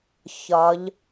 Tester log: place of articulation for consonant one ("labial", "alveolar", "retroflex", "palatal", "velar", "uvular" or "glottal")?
palatal